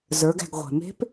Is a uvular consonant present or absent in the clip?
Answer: present